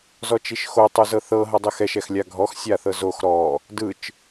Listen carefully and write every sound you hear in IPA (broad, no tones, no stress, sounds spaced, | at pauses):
z ɔ t͡ʃ i ʃ x o tˤ u z ɤ θ ɤ ɦ ɤ dˤ i x ɛ ʃ ɛ x lʲ a ɡʱ ɔ x sʲ a θ ɤ z o x ɾ ɔ | d ɯ t͡ʃ